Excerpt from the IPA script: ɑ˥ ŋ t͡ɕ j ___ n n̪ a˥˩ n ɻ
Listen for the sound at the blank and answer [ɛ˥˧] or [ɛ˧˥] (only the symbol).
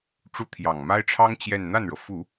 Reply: ɛ˥˧